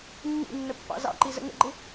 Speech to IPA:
nː ḭ nː ə pː ɑ̰ z ɑ̰ ǃ i z ə̰ ŋ ə̰ ɡ͡ǃ ɪ

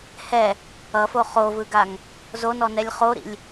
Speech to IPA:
h ɛ | ʌ f o χ o v ɯ ɡ a ŋ | z o n ɔ n ɛ lʲ χ o ɾ ḭ lʲ

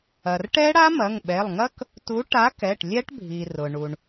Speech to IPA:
ɐ˩ r ʈ ɛ˦˥ ɽ a˦˥ m ɐ˩˧˩ ŋ ɓ ɛ˩˧˩ lˠ ŋ ɐ˦˥ k | t u˨˥ ʈ a˨˥ k ɛ˩˧˩ ʈ lʲ ɛ˦˥ ʈ bʱ i˩ r ʊ˩ ɳ u˩ ɳ

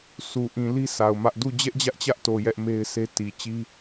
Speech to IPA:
s u˨ ʔ ĩ˨ l i˦ s a˨ ʊ̯ m ä˦ ʔ d u˦˨ d͡ʑ ɛ˦ ʔ d͡ʑ ä˦ ʔ t͡ɕ ä˦ ʔ t o˨ j ɛ˦ ʔ m e˦ ɪ̯ s e˦ t i˨ t͡ɕ i˦

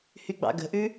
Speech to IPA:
h y ɡ͡b ɑ̰ ɡ ə̤ ʔ ʉ

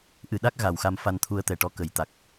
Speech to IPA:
ʔ ɨ˨˩ ɗ a˦˥ k̚ ɣ a˨˩ w x a˧ m f a˧ n t̪ʰ u˧ ə̯ t̪ ɛ˨˩ ʈ ɔ˧˥ k ə˨˩˨ j t̪ a˨˩ k̚

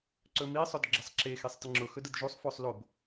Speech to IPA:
ǀ ɵ m i sˤ ɵ d ɡ͡ǁ ə sˤ ǁ e x e sˤ t ə ŋ͡ǁ ʊ x ɵ d ə d ʒ u sˤ f o sˤ l o b

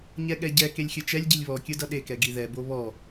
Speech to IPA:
ɲ ɛ ɠ ɛ ɟ ɛ k e lʲ xʲ ɯ t͡ʃ ɛ lʲ ɟ i lʲ β ɔ kʲ ɯ d ʌ ɗ e k ɛ ɡ i ð ɛ b o β ɔ

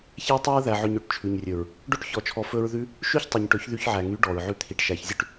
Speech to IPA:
ç æ˦ tˤ ɵ˦ ɹ ð æ˧ ʕ ɵ˧ ɲ ø˨ ʈ t͡ʃʰ ʉ˨ ɲ rʲ ɵ˨ ɹ | ɖ o˦ ʈ ç ɔ˧ t͡ʃʰ ɔ˧ f ɵ˧ ɹ ð ʉ˧ | ʃ ʉ˦ ç tˤ y˨ ɲ ʈ ɵ˨˦ ç ð y˧ ç ʕ æ˨ ŋ y˨˦ ɖ ɔ˨ ɹ ʕ ʉ˧ t̪ʰ i˨ ʈ ʃ æ˨ ç zʲ ʉ˧ ʈ

